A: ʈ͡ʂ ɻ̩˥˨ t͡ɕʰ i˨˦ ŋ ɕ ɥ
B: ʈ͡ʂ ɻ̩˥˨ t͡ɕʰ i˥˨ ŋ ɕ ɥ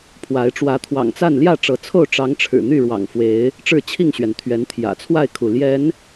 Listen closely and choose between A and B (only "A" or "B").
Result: B